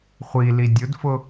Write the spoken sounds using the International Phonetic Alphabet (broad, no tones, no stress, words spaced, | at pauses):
χʷili dʲʊdfʊ